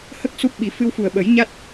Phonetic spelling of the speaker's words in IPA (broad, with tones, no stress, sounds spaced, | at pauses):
h ə˦˥ k̚ s u˦˥ p̚ ɓ i˨˩˦ f ɨ˧ w f u˨˩ ə̯ ɓ ə˨˩˦ j ɲ a˦˥ t̚